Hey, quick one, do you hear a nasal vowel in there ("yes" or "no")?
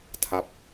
no